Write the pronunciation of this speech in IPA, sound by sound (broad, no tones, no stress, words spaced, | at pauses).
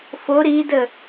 fo ɾidə